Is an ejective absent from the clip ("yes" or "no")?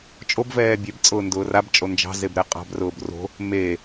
no